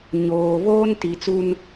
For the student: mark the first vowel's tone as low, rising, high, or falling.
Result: low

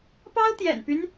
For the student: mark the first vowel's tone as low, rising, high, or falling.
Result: high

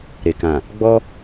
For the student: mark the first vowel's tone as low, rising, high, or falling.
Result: low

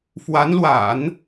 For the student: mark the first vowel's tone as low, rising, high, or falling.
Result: rising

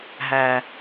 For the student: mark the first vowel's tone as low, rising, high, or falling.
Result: low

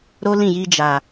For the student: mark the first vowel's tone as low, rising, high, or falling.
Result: high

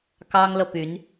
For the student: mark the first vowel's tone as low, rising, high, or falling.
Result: high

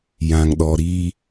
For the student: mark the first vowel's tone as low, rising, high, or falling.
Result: low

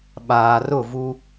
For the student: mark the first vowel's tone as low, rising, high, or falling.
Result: low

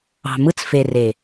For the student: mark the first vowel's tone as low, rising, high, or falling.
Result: low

